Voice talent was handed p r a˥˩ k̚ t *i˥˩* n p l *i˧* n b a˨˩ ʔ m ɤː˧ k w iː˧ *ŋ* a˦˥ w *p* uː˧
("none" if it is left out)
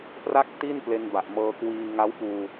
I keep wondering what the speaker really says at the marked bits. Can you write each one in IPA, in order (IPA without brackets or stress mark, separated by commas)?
i˥˩, e˧, ŋ, p